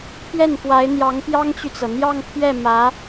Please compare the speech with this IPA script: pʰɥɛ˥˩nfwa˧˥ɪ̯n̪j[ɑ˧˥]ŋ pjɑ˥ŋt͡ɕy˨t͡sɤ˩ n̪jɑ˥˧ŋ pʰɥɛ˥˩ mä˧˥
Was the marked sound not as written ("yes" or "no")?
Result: no